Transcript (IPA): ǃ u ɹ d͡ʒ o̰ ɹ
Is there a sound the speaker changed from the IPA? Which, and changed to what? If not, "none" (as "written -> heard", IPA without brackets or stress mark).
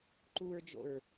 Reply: none